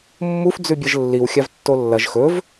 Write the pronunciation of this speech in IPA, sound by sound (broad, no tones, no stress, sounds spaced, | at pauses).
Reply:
mː u f d͡z ʉ bʲ ɐ ʒ lː i w xʲ a v tː o lː ɐ ʒ x ɵ v